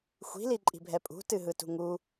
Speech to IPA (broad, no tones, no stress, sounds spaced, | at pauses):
xʷ i̤ l i ǃʼ i̤ bʱ ɛ pʼ ṳ t ɨ ɦ ɯ t ṳ ŋ u